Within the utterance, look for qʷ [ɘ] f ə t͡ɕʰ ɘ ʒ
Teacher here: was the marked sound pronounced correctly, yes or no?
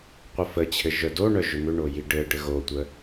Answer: yes